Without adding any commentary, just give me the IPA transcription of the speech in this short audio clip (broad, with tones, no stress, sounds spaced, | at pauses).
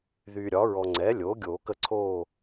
ð yː˨ ɾʲ ɒ˩˥ ɹ ɔ˨ ŋ͡ǀ ɛː˩˥ lʲ oː˩˥ ɡʲ oː˨˩˦ k ə˦˨ ǀʰ oː˦˨